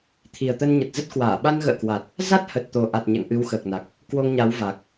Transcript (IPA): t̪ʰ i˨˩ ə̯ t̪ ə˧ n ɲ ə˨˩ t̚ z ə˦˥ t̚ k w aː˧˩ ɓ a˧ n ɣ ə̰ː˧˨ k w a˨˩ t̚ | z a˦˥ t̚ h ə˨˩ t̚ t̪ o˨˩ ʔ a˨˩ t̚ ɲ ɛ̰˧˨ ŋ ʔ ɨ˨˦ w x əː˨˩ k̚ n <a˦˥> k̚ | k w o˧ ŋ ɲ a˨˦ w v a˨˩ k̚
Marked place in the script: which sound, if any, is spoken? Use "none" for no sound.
a˨˩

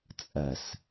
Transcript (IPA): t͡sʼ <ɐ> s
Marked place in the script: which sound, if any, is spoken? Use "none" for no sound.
ɐ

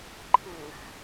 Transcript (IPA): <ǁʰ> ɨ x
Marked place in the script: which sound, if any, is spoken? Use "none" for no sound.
ǃʰ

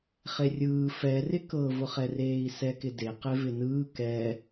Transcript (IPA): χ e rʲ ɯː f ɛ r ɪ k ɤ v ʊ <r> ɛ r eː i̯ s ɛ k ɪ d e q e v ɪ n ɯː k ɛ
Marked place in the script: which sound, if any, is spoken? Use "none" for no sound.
χ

